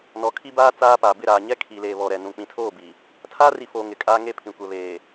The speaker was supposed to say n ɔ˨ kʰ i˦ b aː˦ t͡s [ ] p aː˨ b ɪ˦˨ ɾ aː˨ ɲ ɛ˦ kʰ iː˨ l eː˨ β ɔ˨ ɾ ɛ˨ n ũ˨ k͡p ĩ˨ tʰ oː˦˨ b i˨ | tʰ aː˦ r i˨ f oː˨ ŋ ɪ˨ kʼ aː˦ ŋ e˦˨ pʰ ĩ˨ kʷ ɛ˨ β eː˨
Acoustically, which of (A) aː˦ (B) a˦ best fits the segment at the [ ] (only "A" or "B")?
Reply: A